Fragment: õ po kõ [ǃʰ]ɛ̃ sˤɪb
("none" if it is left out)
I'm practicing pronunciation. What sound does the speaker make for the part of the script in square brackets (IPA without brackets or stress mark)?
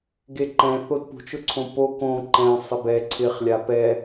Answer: ǃ